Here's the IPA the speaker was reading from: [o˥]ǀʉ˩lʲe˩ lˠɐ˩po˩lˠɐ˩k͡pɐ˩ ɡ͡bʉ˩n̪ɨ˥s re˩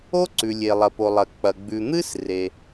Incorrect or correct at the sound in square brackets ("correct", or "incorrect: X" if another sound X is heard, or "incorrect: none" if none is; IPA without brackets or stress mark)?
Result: correct